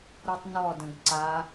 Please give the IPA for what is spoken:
ɾutˤnɔdə̃ɡ ǀa

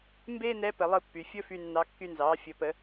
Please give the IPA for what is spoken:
mbeː˥nɛ˧˥ pə˩˧lˠɯ˧ pːy˩ fʲɵ˥fy˧nːɑ˧ kːy˧nzɑː˩˧ fʲɵ˩˧pə˩˧

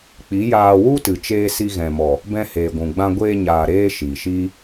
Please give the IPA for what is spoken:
k͡pi˨˦jaː˧ wu˦tɨ˨ t͡ʃeː˧si˧ɣɛ̃˨mɔ˨ | bɛ̃˧heː˨ɡʷũ˨ɡ͡bã˧ ɡʷeː˧ɲaː˨ɾeː˧ ʃiː˨ʃiː˦

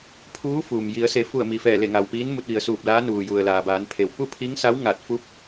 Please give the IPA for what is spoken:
pʰuː˧˥ fuː˩m ji˩˧ə̯ se˩˧fu˧˩ə̯ mi˩fɛː˧˩le˧˩ ŋa˩wpiː˧˥n mu˧t̚ʋi˩˧ə̯suː˧˩p̚laː˧˥ nuː˩ju˩ə̯ laː˩baː˩˧npʰe˩w pu˥˨pʰi˧˥ŋ sa˧˥wŋa˧˩t̚fu˧˥p̚

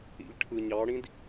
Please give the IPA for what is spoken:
ḭʎʈʰɯɲɑɽĩd

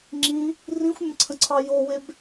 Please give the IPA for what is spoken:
ŋ͡ǁĩ | rĩxʷmʲə̃ǀʰə̃ǀʰɑ joweb

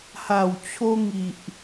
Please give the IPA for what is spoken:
ha˨˩wt͡ɕʰo˧ŋi˨ʔ

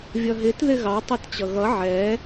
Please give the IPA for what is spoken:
vʲʌɦɪt ðɪɣɑ tˤɛtt͡ɕʌɣʌ ʕɛ

